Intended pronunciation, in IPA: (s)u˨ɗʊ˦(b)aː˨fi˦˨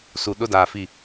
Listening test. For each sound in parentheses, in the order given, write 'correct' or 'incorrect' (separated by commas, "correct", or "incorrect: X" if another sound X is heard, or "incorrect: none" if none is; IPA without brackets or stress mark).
correct, incorrect: d